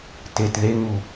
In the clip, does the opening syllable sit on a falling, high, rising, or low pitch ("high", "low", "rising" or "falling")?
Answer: low